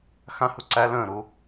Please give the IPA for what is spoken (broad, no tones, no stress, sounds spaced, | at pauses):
x ã h u ǀ æ l ə̃ː ɾ uː